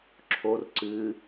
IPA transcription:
ǁʰ o r ǀ ɨ

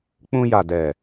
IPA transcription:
k͡p ũ˧ j a˨ d ɛ˨

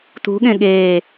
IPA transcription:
t ṳ ɠ ẽ ɠ eː

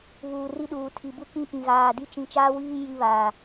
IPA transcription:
β uː˨ r i˦ ɗ uː˨ tʰ i˨ b u˦ k ĩ˦ p ĩ˨ ɣ aː˨ d i˦ t͡ʃ ĩ˦ t͡ʃ aː˦ w iː˦ j i˦ β aː˨

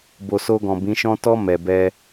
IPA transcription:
b o˨ s o˧ ɡ ɔ̃˨ b ĩ˨˦ ʃ ɔ̃˦ t ɔ˧ m ɛ˨ b ɛ˧

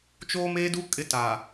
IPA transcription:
t͡ʃ oː˦ m eː˦ d u˦ kʼ ɪ˦ t aː˨

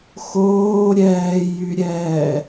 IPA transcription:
x oː ɾʲ ɛː j y ɾʲ ɛː

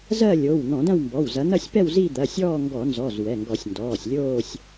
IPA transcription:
z ɜ˥˧ lʲ o˩˧˩ w n̪ ɔ̃˧˩˧ d ɐ̃˥˧ w m b ɔ˩˧˩ w z ɐ˨˦ n̪ ɐ˥˧ sʲ p ɛ˥˧ w z i˥˧ d̪ ɐ˩˧˩ sʲ ɔː˥˧ ŋ ɡ ɔ˧˩˧ n z ɔ˩˧˩ z w ɛ˩˧˩ ŋ ɡ ɔ˧˩˧ sʲ n d ɔː˩˧˩ sʲ lʲ oː˥˧ sʲ

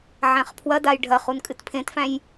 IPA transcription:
ʕ æ̃ χ pʰ w ɐ d a j ɖʱ ɐ χ u n kʼ ɨ t pʰ ẽ t f æ̃ j

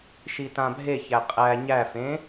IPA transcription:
ʃ i t ã bʱ e ç æ qʼ æ ɲ æ f ẽ

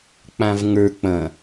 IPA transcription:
k͡p ã v ŋ ə˞ k͡p ɐ̃

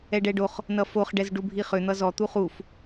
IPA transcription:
ɛ ɖ ɛ ɖ o χ | n ʌ f o χ ɖ ɛ z ɖ u bʱ i χ ʏ n̪ ʌ z ɔ t̪ u χ u f

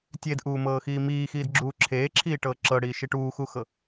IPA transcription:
tʲ e d ʔ uː m ɤː x iː m iː x iː d ɡ͡ǁ uː ǁʰ eː ǁʰ iː ʈ ɤː ǁ ɤ ɽ iː ʃ i ʈ uː x u x ɤ

